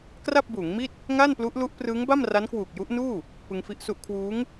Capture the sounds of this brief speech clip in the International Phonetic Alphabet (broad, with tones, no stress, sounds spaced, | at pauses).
k r a˥˩ p̚ b uː˩˦ ŋ m i˥˩ t̚ | ŋ a˥˩ n p l u˦˥ ʔ l u˦˥ ʔ p r ɯː˦˥ ŋ b a˥˩ m r a˦˥ n k w uː˨˩ k̚ j u˦˥ ʔ n uː˥˩ | p ɯ˧ ŋ f i˦˥ ʔ s u˦˥ ʔ kʰ w uː˦˥ ŋ